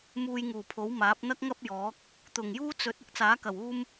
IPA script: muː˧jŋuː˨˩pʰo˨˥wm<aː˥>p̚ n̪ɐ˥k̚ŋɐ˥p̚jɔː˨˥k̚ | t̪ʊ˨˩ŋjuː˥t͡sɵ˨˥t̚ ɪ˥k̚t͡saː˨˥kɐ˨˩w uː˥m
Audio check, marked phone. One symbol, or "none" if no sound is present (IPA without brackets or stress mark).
aː˨˥